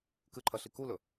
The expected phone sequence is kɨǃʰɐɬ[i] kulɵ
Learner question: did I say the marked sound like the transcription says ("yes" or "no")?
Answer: yes